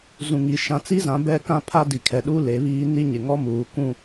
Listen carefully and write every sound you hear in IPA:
z ũ˨ ŋ i˨ ʃ ã˨ t͡s i˦ z ã˨˦ b ɛ˦ k ã˦ pʰ a˦ d i˨ kʰ ɛ˨ ɗ u˦ l e˨˦ β iː˦ n i˦ ɲ ɪ˨ ŋ ɔ˦ m uː˨ kʷ ũ˨

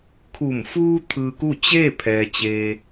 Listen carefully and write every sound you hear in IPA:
kʰ u˧˩ m f uː˧ t̪ʰ ɯː˧ k u˥˨ t͡ɕ eː˥˨ pʰ ɛː˩ t͡ɕ e˩

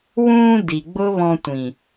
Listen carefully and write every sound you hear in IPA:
w ũː˧ d i˨ ɡ͡b ʊ˦ β ɔ̃˧ tʷ ĩ˨

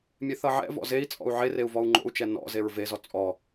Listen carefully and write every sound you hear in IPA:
mʲ e θ ʌ ʕ ɛ̰ v ɔ̰ z e i̯ t͡sʼ ɔ̰ u̯ ʕ e r e u̯ v ɔ u̯ ŋ͡ǃ o̰ u̯ t͡ʃ ɛ n ɔ̰ z e ɹ v e z ɔ t͡sʼ ɔ

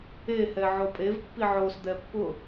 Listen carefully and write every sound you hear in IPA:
e h ɛ ʕ o pʼ e v pː i ʕ o s d̪ ɛ pː ʊ

